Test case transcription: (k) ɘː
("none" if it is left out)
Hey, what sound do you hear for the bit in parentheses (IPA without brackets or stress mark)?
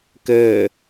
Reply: k